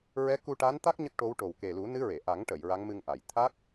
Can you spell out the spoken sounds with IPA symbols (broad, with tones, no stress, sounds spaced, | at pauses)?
ɹ ɛ˧˥ k u˧ ʈ a˧˥ n t̪ a˦˥ k̚ ɲ ə˦˥ k̚ ʈ o˧˥ w ʈ o˨˩ w k e˨˩ l u˨˩˦ n ɨ˧˥ ɹ e˨˩˨ ʔ a˨˩˦ ŋ ʈ ə˨˩˨ j ɹ a˧˥ ŋ m ɨ˧ ŋ ʔ a˨˩˨ j t̪ʰ a˦˥ k̚